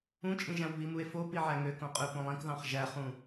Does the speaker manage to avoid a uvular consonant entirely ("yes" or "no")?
no